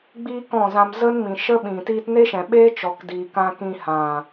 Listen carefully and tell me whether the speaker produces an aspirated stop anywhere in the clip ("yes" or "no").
no